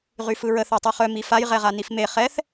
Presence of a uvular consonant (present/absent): present